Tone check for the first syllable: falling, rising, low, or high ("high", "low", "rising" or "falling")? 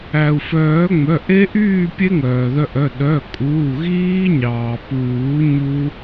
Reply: low